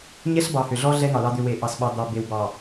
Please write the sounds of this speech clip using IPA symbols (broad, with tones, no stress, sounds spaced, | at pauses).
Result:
ɲ ɛ˦ ɬ b ɑ˨ h ʏ˨ ɮ ɔ˦ ɮ ɛ˦ ŋ ɑ˨ l ɑ˦ d̪ ʏ˦ w e˨ ʔ ɑ˨ s ɓ ɑ˨ d̪ ɑ˨ b e˨ w b ɑ˨